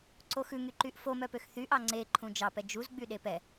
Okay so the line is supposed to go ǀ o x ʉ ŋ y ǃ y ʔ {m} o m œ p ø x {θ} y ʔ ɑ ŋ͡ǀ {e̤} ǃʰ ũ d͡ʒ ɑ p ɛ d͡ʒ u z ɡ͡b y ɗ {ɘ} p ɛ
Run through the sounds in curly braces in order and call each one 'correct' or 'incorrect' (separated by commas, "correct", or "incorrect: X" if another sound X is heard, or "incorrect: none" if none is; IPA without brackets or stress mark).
incorrect: f, correct, incorrect: e, incorrect: e